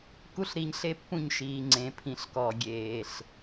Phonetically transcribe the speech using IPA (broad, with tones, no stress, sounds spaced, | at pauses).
k u˦ ɬ ɾ i˧ ɲ ɬ e˦ pː ũ˦˨ ɲ ʃ iː˨ ŋ͡ǀ ẽ˨ pʰ ĩ˨˦ ɬ k ɔː˨ ɡʲ eː˨ ɬ